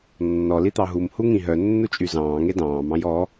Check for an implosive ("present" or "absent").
absent